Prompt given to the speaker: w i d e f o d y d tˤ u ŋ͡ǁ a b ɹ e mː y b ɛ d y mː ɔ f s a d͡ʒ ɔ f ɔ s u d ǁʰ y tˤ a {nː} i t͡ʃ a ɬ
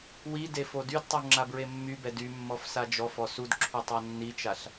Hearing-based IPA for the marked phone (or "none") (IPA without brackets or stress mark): nː